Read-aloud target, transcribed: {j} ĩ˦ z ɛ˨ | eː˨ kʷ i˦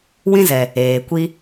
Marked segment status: incorrect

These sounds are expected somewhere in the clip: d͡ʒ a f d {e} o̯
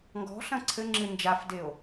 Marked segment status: correct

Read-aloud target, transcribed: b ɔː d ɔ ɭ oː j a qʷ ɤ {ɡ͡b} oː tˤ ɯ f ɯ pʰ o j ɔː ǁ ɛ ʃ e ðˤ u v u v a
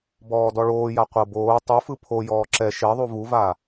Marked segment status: incorrect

